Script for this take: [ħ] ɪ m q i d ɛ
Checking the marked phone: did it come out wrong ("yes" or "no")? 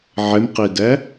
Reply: yes